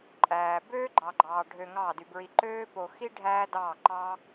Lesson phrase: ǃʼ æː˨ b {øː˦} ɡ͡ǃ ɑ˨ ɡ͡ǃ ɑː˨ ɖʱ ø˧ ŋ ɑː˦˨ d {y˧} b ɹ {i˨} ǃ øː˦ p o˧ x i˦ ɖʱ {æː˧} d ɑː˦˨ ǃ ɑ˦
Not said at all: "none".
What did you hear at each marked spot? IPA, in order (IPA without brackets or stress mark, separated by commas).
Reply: øː˦, y˧, i˧, æː˦